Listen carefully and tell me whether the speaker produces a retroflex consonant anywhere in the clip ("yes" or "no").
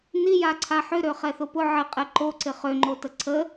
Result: no